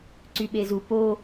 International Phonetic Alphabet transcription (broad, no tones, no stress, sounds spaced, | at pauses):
ǀ y ɓ e z u p o